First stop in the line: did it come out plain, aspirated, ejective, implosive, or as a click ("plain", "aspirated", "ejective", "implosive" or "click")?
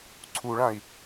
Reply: click